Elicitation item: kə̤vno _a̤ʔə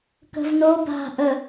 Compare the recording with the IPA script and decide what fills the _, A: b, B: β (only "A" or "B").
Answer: A